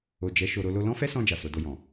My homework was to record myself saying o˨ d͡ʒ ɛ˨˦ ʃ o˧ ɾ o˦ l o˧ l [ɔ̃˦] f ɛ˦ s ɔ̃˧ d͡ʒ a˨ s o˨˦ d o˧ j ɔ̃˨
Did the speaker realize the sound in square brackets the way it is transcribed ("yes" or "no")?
yes